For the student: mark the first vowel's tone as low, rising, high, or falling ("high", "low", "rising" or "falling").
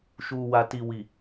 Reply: low